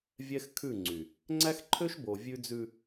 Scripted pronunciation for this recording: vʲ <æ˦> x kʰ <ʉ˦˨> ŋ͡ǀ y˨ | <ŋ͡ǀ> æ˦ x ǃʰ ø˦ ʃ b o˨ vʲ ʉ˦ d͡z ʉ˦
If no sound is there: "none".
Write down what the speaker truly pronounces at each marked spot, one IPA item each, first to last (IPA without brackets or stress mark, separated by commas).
ɛ˦, ʉ˦˨, ŋ͡ǀ